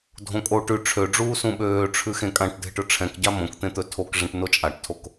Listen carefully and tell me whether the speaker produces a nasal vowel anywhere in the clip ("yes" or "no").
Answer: yes